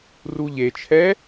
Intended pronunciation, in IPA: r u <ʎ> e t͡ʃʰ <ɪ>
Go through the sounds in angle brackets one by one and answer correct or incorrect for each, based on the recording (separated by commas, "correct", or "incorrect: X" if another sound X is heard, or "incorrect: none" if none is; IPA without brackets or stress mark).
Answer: correct, incorrect: ɛ